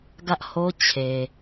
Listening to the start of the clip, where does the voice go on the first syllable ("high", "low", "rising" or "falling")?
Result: high